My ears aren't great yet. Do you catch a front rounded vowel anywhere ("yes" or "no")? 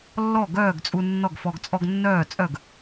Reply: yes